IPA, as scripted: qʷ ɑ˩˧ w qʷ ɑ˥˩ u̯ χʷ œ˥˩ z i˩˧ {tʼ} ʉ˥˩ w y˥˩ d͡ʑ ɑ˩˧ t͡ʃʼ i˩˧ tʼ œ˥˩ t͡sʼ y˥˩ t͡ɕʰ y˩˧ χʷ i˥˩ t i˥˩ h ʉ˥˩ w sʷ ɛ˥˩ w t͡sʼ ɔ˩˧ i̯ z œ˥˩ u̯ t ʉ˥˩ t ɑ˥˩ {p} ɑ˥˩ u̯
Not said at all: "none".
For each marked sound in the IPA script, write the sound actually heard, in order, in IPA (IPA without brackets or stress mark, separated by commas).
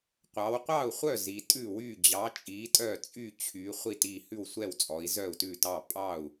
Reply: tʼ, pʼ